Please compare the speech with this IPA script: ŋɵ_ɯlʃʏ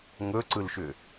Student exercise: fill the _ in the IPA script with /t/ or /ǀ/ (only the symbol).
ǀ